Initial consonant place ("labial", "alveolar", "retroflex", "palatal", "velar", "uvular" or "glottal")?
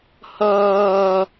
glottal